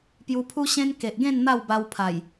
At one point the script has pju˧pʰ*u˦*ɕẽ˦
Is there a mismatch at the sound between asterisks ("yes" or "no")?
no